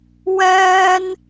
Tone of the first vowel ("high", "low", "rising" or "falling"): high